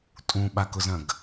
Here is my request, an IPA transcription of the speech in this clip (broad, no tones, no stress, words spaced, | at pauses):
tʼũɓakʊzɐ̃ɡ